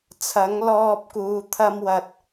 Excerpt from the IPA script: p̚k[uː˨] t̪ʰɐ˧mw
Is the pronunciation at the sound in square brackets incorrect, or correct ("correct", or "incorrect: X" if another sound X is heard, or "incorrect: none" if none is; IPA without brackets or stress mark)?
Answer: incorrect: uː˨˧